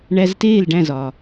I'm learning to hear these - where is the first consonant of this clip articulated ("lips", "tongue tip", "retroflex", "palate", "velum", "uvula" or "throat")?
retroflex